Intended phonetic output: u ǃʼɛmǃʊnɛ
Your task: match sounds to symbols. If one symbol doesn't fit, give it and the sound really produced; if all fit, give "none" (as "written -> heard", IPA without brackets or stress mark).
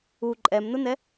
ǃ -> n